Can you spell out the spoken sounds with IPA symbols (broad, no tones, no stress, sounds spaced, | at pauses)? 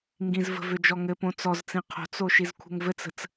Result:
ŋ ɡ ĩ z v ə̤ v ʏ d͡ʒ ɔ ŋ ɘ p õ t͡s ɔ z t͡s ĩ qʰ o̤ t͡s o ʃ i z kʷʰ ə̤ ŋ v ɘ t͡s ə̤ t͡s